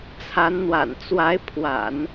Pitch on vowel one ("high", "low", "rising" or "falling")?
rising